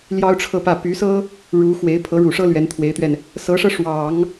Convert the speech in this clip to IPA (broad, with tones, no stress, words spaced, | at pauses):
ljɑ˥ʊ̯ʈ͡ʂʰɤ˥˧pä˥˩ py˧˥sɤ˥ | ɻu˧˥xwe˧˥ɪ̯ pʰɤ˧˥ɻu˨˩ʂɤ˥ lɥɛ˧˥nt̪ʰwe˧˥ɪ̯t̪ɥɛ˧n | sɤ˧˥ʂɤ˧ ʂwɑ˨˩˦ŋ